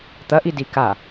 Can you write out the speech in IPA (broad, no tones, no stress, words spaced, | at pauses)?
t̪ɐʔidi ka